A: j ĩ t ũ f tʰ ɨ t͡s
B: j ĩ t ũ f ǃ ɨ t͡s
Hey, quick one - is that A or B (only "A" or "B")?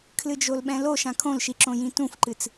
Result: B